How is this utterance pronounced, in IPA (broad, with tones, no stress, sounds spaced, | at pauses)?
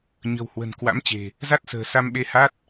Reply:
ɲ ə̤˨˩ w h w ə̤˨˩ n k w a̰˧˥ m t͡ɕ e̤˨˩ | z a˦˥ t̚ s ə̤ː˨˩ s a˧ m ɓ e˧ h a˦˥ t̚